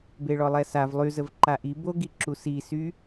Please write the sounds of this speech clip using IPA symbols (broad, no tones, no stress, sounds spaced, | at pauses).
b e ɭ ɔ lˠ ɛ s a v lˠ y z ə v ǃ a ʔ i b o ɡ i ǁ u s i s y